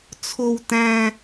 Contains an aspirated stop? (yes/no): yes